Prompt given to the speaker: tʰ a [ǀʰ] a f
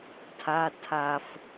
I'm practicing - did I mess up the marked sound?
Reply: yes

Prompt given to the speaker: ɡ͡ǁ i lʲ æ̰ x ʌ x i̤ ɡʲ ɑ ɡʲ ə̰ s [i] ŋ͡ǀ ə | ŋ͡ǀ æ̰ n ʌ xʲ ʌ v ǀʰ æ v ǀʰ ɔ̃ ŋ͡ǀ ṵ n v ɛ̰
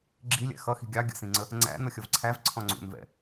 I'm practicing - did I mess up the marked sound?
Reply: yes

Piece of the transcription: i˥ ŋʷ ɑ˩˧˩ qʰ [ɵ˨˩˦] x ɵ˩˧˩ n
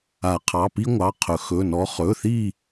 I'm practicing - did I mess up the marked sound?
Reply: no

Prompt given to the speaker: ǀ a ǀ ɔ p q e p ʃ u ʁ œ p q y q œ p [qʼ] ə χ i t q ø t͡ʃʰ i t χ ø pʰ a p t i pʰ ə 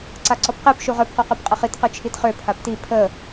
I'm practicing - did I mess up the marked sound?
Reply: no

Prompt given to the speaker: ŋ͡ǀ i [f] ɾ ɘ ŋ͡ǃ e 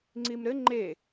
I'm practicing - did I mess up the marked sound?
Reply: yes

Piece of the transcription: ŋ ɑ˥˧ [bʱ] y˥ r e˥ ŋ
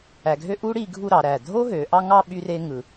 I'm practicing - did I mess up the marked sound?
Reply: yes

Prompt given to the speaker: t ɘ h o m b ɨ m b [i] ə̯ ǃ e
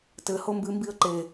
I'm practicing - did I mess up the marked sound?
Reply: no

